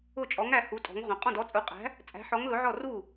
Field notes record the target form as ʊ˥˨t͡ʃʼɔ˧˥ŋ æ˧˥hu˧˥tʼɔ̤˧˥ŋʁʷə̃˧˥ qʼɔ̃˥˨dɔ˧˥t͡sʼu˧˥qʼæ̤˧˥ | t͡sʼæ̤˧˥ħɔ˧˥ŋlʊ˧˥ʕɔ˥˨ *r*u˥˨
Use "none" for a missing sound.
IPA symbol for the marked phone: r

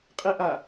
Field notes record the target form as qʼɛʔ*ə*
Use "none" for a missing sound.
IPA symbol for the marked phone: a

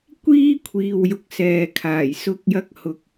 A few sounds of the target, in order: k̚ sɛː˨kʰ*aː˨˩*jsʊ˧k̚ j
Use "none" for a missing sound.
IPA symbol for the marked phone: aː˨˩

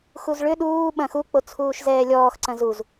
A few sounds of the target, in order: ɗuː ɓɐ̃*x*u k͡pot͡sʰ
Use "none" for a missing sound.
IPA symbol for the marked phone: x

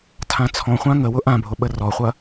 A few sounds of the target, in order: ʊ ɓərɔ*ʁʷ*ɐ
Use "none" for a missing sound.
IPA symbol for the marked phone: χʷ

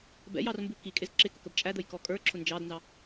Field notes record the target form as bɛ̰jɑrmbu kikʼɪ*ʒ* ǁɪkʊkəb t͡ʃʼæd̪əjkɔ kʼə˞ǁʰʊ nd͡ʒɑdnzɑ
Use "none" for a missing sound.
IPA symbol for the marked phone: z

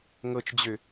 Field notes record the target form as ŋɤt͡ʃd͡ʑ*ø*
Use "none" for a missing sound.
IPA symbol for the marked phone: ø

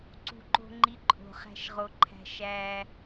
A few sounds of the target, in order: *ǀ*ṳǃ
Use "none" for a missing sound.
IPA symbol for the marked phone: ǀ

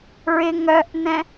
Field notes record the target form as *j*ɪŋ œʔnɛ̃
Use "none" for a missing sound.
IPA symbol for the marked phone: ɹ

